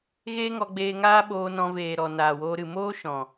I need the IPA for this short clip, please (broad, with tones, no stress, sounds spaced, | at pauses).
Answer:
ɣ eː˦ ŋ ɔ˧ ɡ͡b eː˧ ŋ aː˦ ɓ oː˧ n ɔ̃˧ v eː˨ ɾ ɔ˨ n aː˨ w oː˧ ɾ ɨ˨ m oː˦ ʃ ɔ̃˨